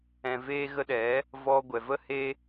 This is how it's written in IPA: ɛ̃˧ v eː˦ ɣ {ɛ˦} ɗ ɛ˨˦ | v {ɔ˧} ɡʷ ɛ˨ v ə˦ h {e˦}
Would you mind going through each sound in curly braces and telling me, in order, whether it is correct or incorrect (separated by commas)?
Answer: incorrect, correct, correct